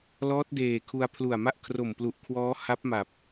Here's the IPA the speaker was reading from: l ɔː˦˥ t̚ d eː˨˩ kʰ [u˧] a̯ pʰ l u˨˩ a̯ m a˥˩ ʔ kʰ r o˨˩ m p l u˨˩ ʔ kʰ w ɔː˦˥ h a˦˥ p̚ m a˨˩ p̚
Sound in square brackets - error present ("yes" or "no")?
no